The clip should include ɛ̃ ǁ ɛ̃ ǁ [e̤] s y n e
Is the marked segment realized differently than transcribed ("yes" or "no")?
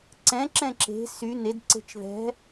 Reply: no